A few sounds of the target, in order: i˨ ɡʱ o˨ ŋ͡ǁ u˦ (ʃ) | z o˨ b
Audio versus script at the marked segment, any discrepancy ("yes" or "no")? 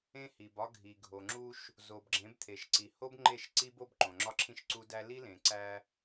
no